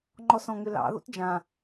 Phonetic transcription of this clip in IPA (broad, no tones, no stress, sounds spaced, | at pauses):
ŋ͡ǃ ɔ s ɔ̃ ŋ ʏ l ɑ̰ ð o̰ t d͡ʒ ã